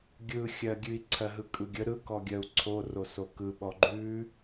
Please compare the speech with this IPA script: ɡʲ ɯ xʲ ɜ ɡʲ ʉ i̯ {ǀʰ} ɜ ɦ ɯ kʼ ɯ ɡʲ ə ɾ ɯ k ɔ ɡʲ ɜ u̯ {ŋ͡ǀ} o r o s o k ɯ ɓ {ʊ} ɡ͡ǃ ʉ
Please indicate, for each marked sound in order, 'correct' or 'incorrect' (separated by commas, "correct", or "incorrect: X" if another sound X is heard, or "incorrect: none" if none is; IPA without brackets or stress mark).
correct, incorrect: ǀʰ, incorrect: ɔ